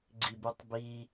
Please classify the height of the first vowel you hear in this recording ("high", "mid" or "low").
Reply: high